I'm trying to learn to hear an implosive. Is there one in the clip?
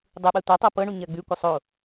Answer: yes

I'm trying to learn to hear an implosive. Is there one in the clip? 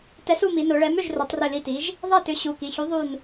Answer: no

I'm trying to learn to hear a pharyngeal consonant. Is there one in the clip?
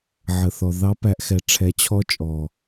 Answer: yes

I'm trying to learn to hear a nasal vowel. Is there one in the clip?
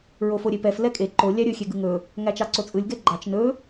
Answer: no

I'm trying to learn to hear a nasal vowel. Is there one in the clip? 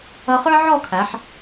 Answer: no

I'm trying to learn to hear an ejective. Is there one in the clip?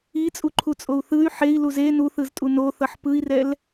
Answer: yes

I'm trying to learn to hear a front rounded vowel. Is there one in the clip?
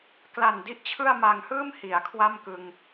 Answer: no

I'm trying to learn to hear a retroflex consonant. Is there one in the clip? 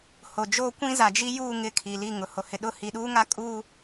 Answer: no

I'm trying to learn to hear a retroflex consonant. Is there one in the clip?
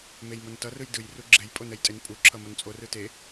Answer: no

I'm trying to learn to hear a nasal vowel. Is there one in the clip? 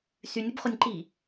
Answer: no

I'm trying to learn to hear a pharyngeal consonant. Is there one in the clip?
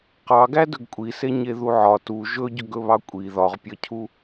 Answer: yes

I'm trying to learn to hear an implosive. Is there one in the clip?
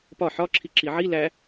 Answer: no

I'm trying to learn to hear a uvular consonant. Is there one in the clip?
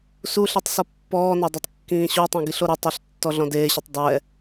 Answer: no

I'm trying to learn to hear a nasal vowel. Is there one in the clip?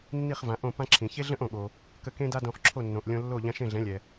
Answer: yes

